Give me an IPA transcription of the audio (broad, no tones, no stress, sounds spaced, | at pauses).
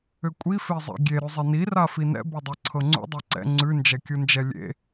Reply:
ʏ kʷʼ i f e zˤ ɛ̰ ɡʲ e ɾ ʉ zˤ i n i r a f i n ɛ̰ b ɤ dˤ ɤ ǀʰ ɤ ŋ͡ǀ ṵ dˤ ɛ ǀ ɛ̰ ŋ͡ǀ ʉ n d͡ʒ ɛ kʲ u n d͡ʒ ɛ lʲ ḛ